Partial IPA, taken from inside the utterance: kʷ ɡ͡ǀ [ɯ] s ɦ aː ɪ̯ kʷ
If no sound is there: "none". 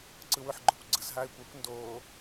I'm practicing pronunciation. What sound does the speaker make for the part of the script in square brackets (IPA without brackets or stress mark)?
ɯ